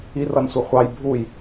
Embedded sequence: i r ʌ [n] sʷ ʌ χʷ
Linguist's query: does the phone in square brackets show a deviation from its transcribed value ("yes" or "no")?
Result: no